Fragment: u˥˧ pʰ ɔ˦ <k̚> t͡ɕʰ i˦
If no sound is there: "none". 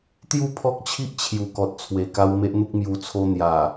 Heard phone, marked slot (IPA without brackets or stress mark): k̚